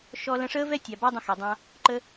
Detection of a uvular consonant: absent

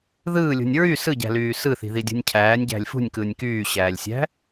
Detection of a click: absent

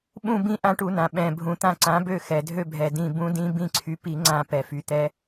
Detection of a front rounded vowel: present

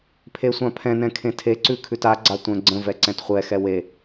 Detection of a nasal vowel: present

